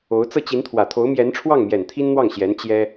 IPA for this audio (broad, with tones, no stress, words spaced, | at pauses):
o˧˥ʊ̯ t͡sɤ˥˩t͡ɕi˧˥nt̪ʰwä˨˩ t̪ʰo˧˥ʊ̯mjɛ˧˥nʈ͡ʂʰwɑ˥˩ŋmjɛ˨˩n t̪ʰi˥nn̪wɑ˥˩ŋɕjɛ˧˥n t͡ɕjɛ˥